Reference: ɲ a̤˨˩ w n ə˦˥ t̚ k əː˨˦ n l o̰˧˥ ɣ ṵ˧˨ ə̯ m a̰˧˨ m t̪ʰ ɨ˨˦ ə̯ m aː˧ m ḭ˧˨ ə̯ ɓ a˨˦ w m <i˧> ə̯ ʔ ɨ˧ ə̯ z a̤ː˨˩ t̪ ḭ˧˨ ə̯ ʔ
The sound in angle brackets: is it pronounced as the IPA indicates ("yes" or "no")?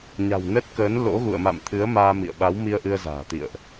yes